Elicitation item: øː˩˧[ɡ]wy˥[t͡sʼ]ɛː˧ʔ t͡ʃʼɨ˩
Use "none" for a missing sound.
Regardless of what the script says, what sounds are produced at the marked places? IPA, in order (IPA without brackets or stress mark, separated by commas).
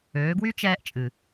ɡ, t͡ʃ